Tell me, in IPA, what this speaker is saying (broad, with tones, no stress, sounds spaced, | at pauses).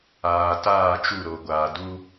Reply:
aː˨ t aː˦˨ t͡ʃ u˦˨ ɾ o˨ ɡʷ aː˨ d u˦